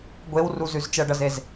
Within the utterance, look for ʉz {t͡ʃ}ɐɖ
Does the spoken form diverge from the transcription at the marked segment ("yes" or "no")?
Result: no